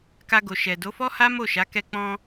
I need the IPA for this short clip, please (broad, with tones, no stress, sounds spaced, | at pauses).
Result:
k a˧ ɡ o˨ ʃ ɛ˨ d o˨˦ f ɔ˦ h a˦ m o˦˨ ʃ a˨˦ k ɛ˧ k͡p ɔ̃˧